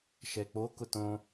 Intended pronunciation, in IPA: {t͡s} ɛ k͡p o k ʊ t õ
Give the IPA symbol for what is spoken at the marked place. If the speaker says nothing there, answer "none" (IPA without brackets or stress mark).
ʃ